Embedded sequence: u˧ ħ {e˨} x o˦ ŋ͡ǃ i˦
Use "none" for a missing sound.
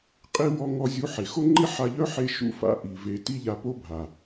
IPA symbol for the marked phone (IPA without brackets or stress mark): e˨